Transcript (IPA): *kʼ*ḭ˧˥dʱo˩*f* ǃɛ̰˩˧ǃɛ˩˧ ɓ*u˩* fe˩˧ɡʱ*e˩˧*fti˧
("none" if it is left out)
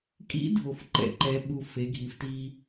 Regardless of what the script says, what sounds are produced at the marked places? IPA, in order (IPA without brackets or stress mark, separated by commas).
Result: kʼ, f, u˩, i˩˧